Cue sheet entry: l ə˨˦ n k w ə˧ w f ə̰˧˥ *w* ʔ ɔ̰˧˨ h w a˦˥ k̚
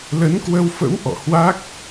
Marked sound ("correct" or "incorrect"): correct